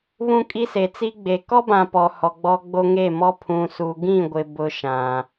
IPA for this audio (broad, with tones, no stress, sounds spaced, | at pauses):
β ũ˦ kʼ i˦ s e˨ t͡s i˦ ɡ͡b e˨ k ɔ˦ b ã˨ p ɔ˨ h ɔ˨ ɡ͡b ɔ˦ ɡ͡b o˦ ŋ e˦˨ m ɔ˦ pʰ ũ˨ s u˨ ɡ ĩ˦˨ ɡʷ ɪ˨ b ʊ˦ ʃ ã˨